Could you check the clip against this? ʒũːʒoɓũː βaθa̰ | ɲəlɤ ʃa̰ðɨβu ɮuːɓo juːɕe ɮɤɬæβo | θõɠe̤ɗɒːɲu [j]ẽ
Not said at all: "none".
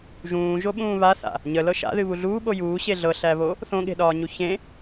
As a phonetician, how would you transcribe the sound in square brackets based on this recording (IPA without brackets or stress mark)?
ç